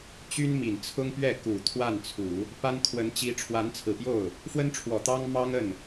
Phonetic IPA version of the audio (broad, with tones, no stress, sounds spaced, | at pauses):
t͡ɕ y˥ n m i˨˩ n t͡sʰ ʊ˥ ŋ p ɥ ɛ˥˩ k u˨˩ t̪ʰ w a˥˩ n t͡sʰ u˨˩˦ | p a˥ n kʰ w ə˧˥ n t͡ɕ i˧˥ ʈ͡ʂʰ w a˧˥ n t͡sʰ ɹ̩˨˩ p j o˥˩ ʊ̯ | f w ə˥ n ʈ͡ʂʰ w ɔ˨˩ t̪ ɑ˥ ŋ m ɑ˥ ŋ ə˥˩ n